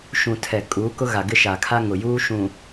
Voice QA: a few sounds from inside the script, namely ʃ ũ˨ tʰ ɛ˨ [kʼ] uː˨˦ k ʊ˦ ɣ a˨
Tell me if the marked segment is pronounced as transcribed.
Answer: yes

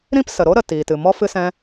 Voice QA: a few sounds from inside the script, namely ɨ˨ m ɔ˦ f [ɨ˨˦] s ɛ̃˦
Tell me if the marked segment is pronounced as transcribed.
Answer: no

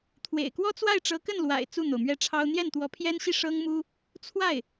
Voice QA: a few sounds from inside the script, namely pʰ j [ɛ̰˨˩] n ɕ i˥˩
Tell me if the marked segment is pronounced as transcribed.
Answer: no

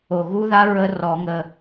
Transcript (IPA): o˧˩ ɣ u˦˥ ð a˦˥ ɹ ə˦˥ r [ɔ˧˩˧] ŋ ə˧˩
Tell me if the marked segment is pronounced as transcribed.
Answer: yes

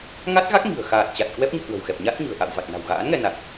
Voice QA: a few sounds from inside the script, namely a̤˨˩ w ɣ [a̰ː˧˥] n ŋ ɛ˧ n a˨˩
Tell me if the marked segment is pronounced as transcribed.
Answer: yes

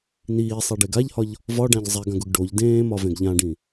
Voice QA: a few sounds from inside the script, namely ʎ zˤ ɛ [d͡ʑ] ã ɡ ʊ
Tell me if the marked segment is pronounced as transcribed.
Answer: no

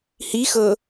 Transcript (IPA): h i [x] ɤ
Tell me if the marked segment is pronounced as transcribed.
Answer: yes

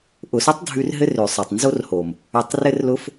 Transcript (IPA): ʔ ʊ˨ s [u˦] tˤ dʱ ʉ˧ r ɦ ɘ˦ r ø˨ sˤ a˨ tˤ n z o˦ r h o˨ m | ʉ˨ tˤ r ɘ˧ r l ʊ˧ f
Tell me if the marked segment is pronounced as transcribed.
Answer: no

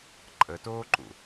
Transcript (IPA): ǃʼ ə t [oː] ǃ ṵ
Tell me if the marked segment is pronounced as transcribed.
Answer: yes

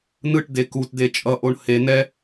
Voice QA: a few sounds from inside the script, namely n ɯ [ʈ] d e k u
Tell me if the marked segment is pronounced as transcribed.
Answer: yes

